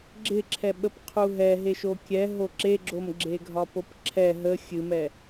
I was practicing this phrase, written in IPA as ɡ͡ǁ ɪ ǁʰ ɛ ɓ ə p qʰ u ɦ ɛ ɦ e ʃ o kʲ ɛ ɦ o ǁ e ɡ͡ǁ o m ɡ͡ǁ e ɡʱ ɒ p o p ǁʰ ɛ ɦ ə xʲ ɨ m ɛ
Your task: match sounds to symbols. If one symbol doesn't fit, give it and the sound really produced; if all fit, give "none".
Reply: none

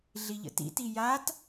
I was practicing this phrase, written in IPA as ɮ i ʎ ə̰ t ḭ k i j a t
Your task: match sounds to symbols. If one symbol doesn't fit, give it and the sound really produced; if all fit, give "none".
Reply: k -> t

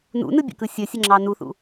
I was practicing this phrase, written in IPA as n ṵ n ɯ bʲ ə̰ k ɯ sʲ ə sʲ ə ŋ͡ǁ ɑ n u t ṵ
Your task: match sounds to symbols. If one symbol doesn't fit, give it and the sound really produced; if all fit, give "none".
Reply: t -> θ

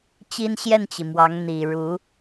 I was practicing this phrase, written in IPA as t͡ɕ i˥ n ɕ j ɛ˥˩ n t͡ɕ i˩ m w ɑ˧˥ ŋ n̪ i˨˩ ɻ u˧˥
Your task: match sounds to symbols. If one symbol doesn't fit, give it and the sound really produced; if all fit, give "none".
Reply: none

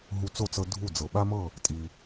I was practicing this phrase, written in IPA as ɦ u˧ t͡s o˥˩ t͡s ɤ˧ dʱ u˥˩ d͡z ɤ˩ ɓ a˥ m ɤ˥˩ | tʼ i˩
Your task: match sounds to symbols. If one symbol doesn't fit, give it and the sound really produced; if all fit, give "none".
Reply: none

